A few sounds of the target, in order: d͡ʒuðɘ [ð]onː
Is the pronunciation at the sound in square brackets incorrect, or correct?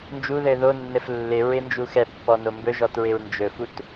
correct